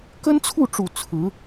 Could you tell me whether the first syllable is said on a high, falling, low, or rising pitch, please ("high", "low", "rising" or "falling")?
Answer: high